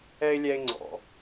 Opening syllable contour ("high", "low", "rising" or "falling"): high